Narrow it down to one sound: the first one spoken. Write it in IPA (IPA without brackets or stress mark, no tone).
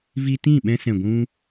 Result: v